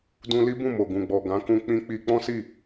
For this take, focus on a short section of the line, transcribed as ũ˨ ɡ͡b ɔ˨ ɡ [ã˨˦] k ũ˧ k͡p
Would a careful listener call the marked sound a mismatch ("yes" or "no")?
no